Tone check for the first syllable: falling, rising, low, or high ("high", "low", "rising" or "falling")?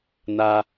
high